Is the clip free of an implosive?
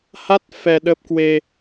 no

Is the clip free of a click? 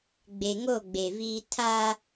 yes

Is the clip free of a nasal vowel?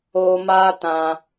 no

